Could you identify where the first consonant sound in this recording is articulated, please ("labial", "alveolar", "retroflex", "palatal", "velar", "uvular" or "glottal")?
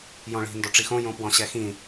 palatal